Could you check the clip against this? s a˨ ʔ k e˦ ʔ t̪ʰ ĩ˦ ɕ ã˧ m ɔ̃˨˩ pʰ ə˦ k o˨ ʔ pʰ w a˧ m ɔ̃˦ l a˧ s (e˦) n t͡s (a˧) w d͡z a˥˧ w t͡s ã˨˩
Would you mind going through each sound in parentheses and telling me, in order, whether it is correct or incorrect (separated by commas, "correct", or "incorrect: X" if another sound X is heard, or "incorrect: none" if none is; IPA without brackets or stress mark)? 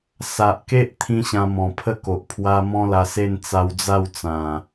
incorrect: e˥˧, correct